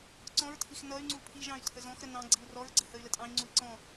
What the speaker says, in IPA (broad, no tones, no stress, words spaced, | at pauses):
ǀɔ̃ɹtʰix nʌy̯ŋ͡ǀu pʰiʒɑ̃y̯ tʰəzɔ̃xɾə nɑ̃ ɡ͡ǀiu̯rɔɹɡ͡ǀə həy̯lətʼɑ̃i̯ŋ͡ǀui̯ ǀɔ̃